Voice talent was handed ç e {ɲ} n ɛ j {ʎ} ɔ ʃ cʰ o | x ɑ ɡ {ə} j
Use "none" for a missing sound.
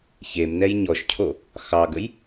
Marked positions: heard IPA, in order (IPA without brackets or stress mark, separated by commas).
m, ɲ, ə